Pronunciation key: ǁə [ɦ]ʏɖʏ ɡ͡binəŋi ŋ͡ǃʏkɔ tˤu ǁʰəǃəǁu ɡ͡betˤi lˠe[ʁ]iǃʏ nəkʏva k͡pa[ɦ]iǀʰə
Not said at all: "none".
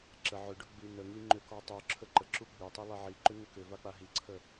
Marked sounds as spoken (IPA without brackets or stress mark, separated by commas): ʕ, ʕ, ɦ